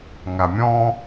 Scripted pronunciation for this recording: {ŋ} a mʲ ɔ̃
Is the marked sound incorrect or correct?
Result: correct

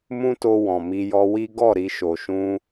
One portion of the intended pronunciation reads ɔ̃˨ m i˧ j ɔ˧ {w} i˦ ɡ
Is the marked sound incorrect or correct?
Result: correct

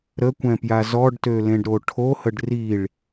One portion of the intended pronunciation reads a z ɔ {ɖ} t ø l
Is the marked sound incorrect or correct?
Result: correct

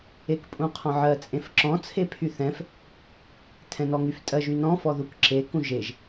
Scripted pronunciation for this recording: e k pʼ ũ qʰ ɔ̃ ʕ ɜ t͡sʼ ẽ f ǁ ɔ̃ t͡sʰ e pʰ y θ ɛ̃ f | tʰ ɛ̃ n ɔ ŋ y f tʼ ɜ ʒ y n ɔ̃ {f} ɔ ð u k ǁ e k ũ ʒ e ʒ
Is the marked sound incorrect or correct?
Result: correct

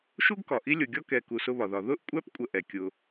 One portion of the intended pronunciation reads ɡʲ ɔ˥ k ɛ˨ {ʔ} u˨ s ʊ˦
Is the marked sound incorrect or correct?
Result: incorrect: k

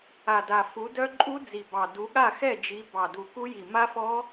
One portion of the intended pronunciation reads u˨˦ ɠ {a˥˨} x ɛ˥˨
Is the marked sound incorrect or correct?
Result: correct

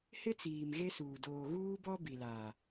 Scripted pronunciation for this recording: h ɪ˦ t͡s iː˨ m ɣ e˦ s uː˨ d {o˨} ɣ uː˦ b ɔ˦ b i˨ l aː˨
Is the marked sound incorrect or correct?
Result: incorrect: oː˨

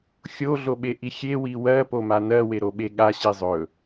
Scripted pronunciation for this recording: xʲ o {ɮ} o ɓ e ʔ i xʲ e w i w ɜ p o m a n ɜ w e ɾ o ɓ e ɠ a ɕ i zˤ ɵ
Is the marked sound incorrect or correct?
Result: correct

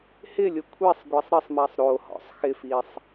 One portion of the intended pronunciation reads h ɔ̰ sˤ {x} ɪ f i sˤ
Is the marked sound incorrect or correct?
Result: correct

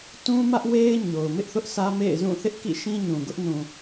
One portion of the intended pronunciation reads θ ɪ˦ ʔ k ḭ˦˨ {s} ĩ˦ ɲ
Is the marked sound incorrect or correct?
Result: incorrect: ʃ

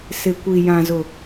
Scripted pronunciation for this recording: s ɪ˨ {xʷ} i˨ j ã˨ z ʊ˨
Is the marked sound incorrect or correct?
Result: incorrect: kʷ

